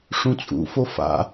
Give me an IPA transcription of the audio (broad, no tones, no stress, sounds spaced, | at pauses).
ʂ ũ t͡sʼ ṵ f o f a̰